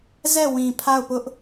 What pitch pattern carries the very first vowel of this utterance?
falling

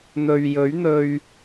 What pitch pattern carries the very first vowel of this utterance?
low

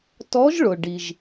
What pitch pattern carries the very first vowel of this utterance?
rising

